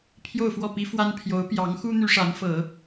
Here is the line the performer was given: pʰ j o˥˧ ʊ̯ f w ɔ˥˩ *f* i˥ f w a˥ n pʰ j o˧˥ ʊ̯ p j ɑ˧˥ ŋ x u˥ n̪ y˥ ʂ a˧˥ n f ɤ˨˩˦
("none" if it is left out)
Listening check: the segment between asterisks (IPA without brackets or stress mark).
p